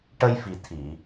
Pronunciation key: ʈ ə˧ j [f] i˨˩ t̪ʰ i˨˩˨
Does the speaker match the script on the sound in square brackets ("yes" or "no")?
yes